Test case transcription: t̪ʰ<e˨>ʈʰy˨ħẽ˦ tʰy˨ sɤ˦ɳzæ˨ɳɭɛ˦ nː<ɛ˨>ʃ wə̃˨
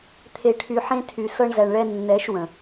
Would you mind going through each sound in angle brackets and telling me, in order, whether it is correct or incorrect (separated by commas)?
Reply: correct, incorrect